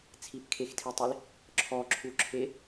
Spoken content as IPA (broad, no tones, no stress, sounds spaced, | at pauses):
t͡sʰ i p kʰ e x tʰ i tˤ i l | ǁʰ ɔ ǁʰ u ǁʰ e